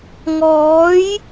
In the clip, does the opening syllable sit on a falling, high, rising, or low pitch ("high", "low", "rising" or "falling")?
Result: rising